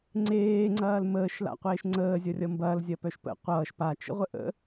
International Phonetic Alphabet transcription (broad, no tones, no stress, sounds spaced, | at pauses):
ŋ͡ǀ eː ŋ͡ǀ ɐː l m əː ʃ l a̰ qʷ eː ʃ ŋ͡ǀ əː zʲ ʌ rʲ ʌ m b ɐː l zʲ ɐ p œ ʃ p ə̰ qʷ ʌː ʃ p a t͡ʃ ə̰ ʁʷ ə ʔ ə̰